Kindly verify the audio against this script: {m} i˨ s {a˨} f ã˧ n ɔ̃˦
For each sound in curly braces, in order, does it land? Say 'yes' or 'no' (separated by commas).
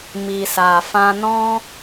yes, yes